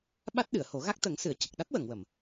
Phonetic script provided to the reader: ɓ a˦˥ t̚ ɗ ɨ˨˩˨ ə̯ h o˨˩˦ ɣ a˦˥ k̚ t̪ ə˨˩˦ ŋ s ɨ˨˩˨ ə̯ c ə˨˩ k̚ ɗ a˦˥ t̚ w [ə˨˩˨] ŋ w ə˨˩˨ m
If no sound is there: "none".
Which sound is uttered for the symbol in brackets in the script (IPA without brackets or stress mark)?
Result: ə˨˩˨